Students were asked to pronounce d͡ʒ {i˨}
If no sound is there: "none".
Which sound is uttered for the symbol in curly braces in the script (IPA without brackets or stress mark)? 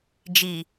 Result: i˨